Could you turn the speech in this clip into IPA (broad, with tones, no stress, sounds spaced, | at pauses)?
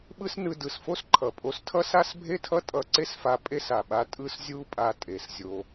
ɓ ɯ˥ s n ɯ˧ d ɯ˩ s f o˥ s ǃʰ ʌ˩ pʼ o˧ s tʰ ʌ˥ s a˥ s bʱ e˥ tʰ ʌ˥ tʼ ʌ˧ ǀ e˥ s f a˧ pʼ e˥ s a˩ ɓ a˧ tʼ ɯ˥ s zʲ u˥ pʼ a˧ tʼ e˩ s zʲ o˧